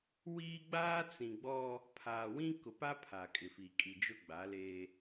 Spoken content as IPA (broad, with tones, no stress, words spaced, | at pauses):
wiː˦ ɡ͡baː˦t͡sĩ˨ɡ͡bɔ˦ | pʰaː˨wĩ˦ kʊ˨pa˦ pʰa˨kʼɪ˨fi˨kʼi˨ d͡ʒʊ˦ɡ͡ba˨˦leː˦